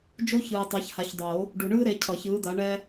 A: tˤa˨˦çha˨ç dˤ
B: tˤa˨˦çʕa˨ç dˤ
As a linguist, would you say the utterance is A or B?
A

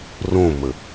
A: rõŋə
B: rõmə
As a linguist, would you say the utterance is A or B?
B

